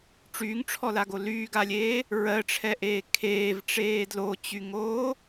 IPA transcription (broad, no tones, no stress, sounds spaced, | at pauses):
ʈ͡ʂ yː ŋ ʈ͡ʂʰ ɔ l a ɡ o l yː ɡ a lʲ eː | ɹ ɜ ʈ͡ʂʰ ɛ ʔ eː kʰ eː v ʈ͡ʂ eː d l o t͡ɕ y ŋ oː